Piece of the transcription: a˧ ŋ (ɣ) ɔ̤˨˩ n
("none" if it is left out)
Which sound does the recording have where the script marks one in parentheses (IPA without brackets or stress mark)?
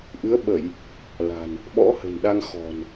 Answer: x